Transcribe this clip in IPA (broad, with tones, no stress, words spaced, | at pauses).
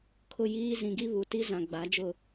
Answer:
kʰʊ˦˨jiː˦ zĩ˨ɡi˦βu˨ ti˦zã˨ɡ͡ba˨˦d͡ʒʊ˦˨